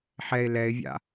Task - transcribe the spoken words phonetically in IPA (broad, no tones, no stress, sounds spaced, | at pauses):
ħ ɛ ɪ̯ l ɛ ɪ̯ vʲ a̰